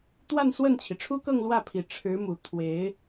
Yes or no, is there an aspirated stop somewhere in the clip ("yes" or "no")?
yes